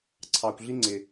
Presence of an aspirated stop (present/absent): present